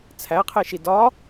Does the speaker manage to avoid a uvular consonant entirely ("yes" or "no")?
no